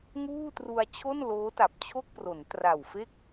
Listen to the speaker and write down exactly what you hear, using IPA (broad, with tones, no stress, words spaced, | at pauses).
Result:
ŋuː˥˩tru˧a̯ t͡ɕʰo˥˩nloː˦˥ta˨˩p̚t͡ɕʰo˥˩k̚ pro˩˦ntra˨˩wfe˥˩k̚